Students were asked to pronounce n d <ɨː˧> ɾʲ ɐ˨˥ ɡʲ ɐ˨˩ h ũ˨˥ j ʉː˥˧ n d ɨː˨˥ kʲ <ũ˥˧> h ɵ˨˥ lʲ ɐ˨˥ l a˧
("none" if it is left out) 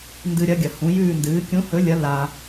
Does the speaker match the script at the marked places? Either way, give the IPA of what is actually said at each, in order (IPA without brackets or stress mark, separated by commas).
ɨ˧, ũ˨˥